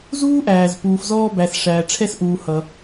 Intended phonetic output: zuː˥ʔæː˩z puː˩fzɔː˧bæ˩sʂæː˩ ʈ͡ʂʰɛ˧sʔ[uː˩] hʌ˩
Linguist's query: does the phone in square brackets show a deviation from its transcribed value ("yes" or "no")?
no